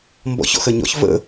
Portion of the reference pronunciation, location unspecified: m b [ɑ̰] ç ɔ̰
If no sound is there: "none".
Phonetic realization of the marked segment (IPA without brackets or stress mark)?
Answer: ɔ̰